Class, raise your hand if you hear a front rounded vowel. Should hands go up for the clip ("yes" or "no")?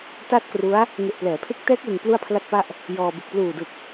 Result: no